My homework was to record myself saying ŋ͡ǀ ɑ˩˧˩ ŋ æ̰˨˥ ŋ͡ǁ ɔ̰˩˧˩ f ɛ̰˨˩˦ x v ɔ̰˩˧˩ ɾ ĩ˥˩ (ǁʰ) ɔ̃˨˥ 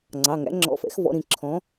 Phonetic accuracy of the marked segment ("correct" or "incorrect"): correct